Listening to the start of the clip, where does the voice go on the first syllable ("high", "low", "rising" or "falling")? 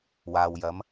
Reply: low